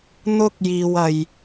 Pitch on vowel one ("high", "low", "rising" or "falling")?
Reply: high